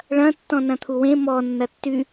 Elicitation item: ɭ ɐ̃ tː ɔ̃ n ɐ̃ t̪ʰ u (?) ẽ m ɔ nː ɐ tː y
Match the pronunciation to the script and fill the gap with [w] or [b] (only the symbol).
w